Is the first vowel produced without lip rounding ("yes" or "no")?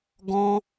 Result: no